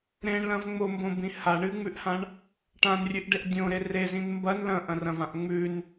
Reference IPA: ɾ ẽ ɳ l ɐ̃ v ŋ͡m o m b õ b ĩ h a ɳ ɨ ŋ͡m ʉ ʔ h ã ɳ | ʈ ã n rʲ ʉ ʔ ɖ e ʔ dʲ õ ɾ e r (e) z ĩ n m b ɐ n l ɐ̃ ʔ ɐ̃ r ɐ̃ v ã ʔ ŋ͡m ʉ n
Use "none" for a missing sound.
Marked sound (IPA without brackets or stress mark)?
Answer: e